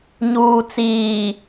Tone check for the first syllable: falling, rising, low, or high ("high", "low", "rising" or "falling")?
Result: low